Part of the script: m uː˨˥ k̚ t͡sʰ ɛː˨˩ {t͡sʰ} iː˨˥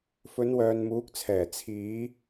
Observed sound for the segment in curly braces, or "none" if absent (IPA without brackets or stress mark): t͡sʰ